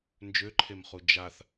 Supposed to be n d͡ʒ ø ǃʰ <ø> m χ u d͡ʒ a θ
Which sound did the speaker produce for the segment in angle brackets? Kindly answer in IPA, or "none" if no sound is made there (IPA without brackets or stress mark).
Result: e